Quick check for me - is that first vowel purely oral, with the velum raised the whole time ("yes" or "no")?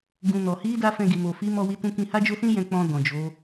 no